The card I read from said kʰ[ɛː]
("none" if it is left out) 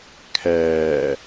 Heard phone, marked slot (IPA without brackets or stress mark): ɛː